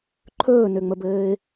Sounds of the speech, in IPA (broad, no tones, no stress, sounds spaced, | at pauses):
ǃʰ ɵː n ø ŋ͡m ə b ɘː ɪ̯